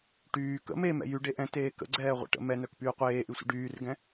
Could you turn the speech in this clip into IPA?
ʈ yː k ə̰ m e m ɛ̰ j y ɖ e ʔ ɛ̃ t eː k ə̰ ɡ͡ǀ ɛː ʁʷ ɛ̰ ʈ ə̰ m ɛ n œ k p yː qʷ eː ʔ y sʷ ə̰ ɖ yː r ɡ ɛ̃

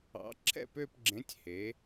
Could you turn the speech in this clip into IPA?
ɑ̰˩˥ ǁʰ ɛ̰˥˨ p ø˥˨ p ɡ͡ǁ ẽ˩˥ tʲ h e˩˥

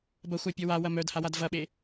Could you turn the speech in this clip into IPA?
b ɐ xʷ a pʲ ɔ w a w ɐ m œ d h a w a d v ɐ ɓ e

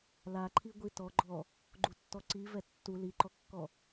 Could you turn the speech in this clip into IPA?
l a ǃʰ i ɡʷ i t ɔ ɡ͡ǃ ɔ | ɡ͡ǃ u tː ɔ ǀ i v ɛ tː u l i ǃ ɔ kː ɔ

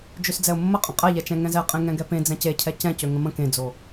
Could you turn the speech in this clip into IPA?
d͡ʒ ø s d͡z ɛ ʊ̯ mː ə qʼ ə̃ qʼ ɛ ʎ ɛ t͡ʃ ɛ̃ ŋ ɛ̃ z ɛ qʼ ẽ ŋ ɛ̃ ɡ ɛ p ẽ d͡z ɛ̃ c e cʰ ɛ c ɛ̃ c ø ŋ ə̃ m ə̃ k ẽ d͡z o

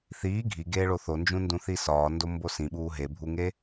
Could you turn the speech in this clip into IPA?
θ iː ɡʱ i ɡ eː ɭ o θ o n d͡ʒ ũ n d ũ θ i s ɒː n d o m b o s ĩ ɓ uː ɦ e bʱ u ŋ e

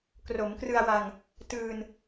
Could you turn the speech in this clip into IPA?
k r o˩˦ m k r ɯ˧ a̯ w a˧ ŋ | t ɯː˧ n

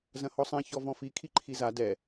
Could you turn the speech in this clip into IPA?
z ɐ̃ h ɔ sˤ ɛ̃ ç ɔ v ɔ̃ f i kʰ i ǃʰ i z a d ɛ

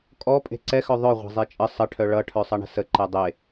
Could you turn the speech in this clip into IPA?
kʼ ɔ pʼ e̤ ǀ ɛ x œ ðˤ œ ʁʷ a̤ zˤ e t͡ʃʼ ə sˤ ə ʈʰ œ ɭ ʌ ʈʰ œ sˤ ʌ ɳ ə̤ s ə ǃ ɛ dˤ e

